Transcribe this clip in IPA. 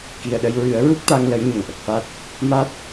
ki˨˩ə̯ɗə˧j ɹɨ˨˩˦ə̯ɹu˦˥k̚t̪a˧ŋ lə˧˥jɲə˨˩ŋʔə˨˩k̚fa˦˥t̚ | ma˦˥t̚

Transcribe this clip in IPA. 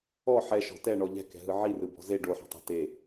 ɔ ħɛʃɔ̤ tɛɳɔ ʎɛ̤kɛ̤ɦɯ ʕirɯbɔ̤ ze ɖoħɔ̤tˤa̤ te

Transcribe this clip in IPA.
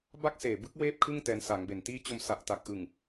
ba˥˩k̚seː˨˩bɯ˦˥k̚ weː˥˩p̚kʰɯ˥˩ŋ tɛː˧nsa˩˦ŋbe˨˩n tiː˦˥t͡ɕo˧m sa˨˩ʔta˨˩k̚ ʔɯ˨˩ŋ

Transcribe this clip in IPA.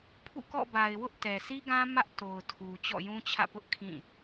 pʰṵ˦˨kɔ̰˦˨ba˨ɪ̯wʊ˦ʔ tɛ˨si˦ɡã˦ mä˦ʔto˨ʊ̯tʰu˨ t͡ɕɔ̰˦˨jũ˦t͡ɕʰä̰˦˨pʊ˦ʔ kʰĩ˦˨

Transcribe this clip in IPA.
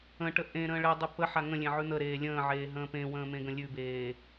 ə̃ʈə ʔẽ ɾə̃ːɭedˤʉ pəħa ŋə̃lʲẽ ʕʉn̪əɾeː lʲə̃ːʕeː ɦə̃ːpẽwə̃ː mẽɡə̃lʲʉbeː

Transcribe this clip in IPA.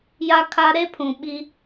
ja˦kʰa˦ ɾe˦pʰũ˨ ɓi˦

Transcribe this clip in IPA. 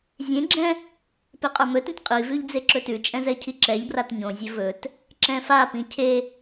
zʲẽɡ͡ǁɛ̃ | peqʼə˞mɵtĩt qʼivʉʎ d͡zeǁɵtʉt͡ʃʼɛ̃ zɛcʰiǁɛʎbrat ɲõzʲɵ vɵt | ǁɛ̃fapĩ cʰe

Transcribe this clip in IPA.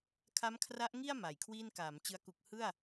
kʰa˦˥mkʰra˦˥ʔŋi˥˩a̯ ma˨˩jkʰwiː˥˩n kaː˩˦mt͡ɕɯ˧a̯ ku˨˩k̚hɯ˥˩a̯

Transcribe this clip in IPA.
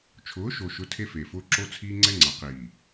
t͡ʃʰʊː˨˦ʃo˨ʃʊ˨˦ tʰe˦feː˨fʊː˦ ǁo˦t͡sʰiː˦ŋ͡ǀɛ˦ ŋ͡ǀa˨qiː˨

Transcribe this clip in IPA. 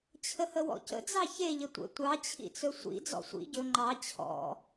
t͡ɕʰəhəwɔ̰cə̰ d͡zɑçe ʎətʷə̰ tʷɑ t͡ɕʰḭt͡sɵsʷḭ d͡zɔ̰sʷḭ ɟɵ ŋ͡ǃɑ t͡ɕʰɔ̰

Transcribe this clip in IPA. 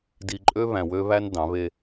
di˧ǃʼø˥ βæ̃˧wø˥βæ˥n dɑ̃˩˧βe˧

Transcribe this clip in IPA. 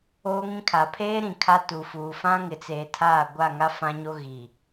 oː˦ŋĩ˦kʰa˨ pʰeː˦ɾĩ˨ kʰa˦tu˨fuː˨ fã˦ŋɪ˨t͡seː˨tʰaː˦˨ ɡʷa˦˨ ŋa˦fã˦ɲo˦ ɣi˨

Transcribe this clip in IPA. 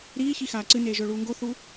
ɾiː çixaːǀɨneː ʒɵːɭuːŋɡoθuː

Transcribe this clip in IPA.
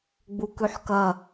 ɡ͡bukʉħkɐ

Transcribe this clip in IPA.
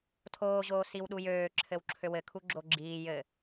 tʰoːʑoː siwɗujøː ǁʰɘwǁʰøwɘ kʰuɡ͡ǁoɡ͡ǁiː jɘ

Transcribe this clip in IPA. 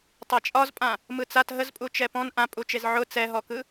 tˤat͡ʃʼɒzpʼã | mɯt͡sat ɦəzpʼu t͡ʃɛpɔ̃n ʔãpʼut͡ʃez ʕʊ t͡sɛɦɔkɯ

